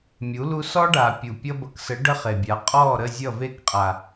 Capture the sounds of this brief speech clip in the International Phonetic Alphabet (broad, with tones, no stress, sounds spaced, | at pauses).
mʲ u˨˦ l u˦ s ɔ˦ ɖ a˨ pʲ u˨ pʲ ʌ˦ b ʌ˨ k s ə˨˦ ɖ ə˦ χ e˨ bʲ a˨˦ qʼ ɔ˦˨ ɾ ə˦˨ zʲ ʌ˦˨ v e˦˨ k qʼ a˨